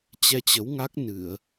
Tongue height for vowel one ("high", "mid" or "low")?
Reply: mid